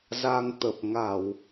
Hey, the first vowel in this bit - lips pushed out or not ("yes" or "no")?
no